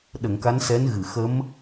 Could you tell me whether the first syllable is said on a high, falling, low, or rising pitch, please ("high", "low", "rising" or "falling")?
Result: low